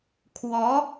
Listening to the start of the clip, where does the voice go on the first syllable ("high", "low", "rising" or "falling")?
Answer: rising